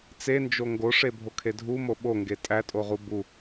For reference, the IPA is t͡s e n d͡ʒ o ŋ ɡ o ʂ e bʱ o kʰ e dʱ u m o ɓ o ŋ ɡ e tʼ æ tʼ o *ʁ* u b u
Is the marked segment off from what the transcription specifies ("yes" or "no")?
no